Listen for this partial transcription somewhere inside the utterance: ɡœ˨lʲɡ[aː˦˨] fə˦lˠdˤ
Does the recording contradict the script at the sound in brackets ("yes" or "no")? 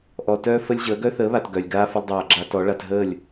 yes